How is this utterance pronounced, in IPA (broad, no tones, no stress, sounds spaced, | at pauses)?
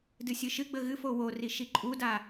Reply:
d ɨ sʲ ɨ ʃ ɨ ɡ͡b ə ɣ ɨ f o w o r i ʃ i ǃʼ u d a